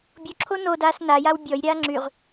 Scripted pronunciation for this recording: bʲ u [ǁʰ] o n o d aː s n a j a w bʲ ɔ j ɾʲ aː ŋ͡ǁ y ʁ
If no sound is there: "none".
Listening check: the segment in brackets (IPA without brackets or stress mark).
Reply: ǁʰ